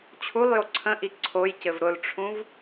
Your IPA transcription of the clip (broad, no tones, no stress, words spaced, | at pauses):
t͡ɕʰulˠjo ǀʰə̃ʔi ǀʰojcɘv ɾʊlʈ͡ʂʰũv